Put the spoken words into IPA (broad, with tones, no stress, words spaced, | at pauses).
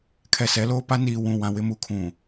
kʰɛ˨sɛ˨˦loː˦pa˦ niː˨wũ˨ wã˨wɪ˦mu˨ kʰũ˨